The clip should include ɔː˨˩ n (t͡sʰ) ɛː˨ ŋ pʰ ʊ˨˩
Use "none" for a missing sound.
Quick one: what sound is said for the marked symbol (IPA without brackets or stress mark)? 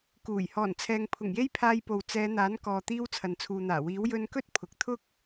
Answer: t͡sʰ